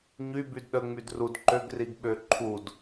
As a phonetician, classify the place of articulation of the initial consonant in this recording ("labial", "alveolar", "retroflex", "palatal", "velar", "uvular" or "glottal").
palatal